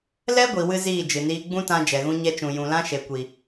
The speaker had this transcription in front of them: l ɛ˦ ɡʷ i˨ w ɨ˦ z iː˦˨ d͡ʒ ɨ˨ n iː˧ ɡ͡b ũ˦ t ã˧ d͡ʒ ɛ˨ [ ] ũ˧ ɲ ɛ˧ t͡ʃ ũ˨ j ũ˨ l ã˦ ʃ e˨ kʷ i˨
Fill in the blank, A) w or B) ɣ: B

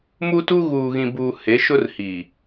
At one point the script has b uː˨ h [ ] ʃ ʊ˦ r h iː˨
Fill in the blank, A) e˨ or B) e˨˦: B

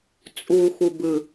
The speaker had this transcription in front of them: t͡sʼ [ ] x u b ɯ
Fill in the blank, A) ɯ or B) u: B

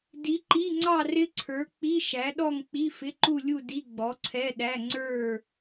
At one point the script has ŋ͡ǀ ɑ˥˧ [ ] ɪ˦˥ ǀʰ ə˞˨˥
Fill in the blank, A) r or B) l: A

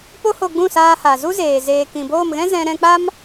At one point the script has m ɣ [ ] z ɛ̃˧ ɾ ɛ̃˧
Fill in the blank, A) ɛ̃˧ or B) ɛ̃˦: B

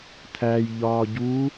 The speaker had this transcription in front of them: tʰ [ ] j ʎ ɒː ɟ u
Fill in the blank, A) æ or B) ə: A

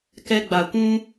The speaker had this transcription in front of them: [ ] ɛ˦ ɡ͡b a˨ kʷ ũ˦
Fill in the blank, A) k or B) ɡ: A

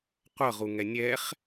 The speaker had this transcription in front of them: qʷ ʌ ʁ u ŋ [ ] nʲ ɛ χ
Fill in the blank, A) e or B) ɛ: B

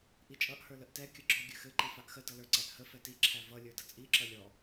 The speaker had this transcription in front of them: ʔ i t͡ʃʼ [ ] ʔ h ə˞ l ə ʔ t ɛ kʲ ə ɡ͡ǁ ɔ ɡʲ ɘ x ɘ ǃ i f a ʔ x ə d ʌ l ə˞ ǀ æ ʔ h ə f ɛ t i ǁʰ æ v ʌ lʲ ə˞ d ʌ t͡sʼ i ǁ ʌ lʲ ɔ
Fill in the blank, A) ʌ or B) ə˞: A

